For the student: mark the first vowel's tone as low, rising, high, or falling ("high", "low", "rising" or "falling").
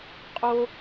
high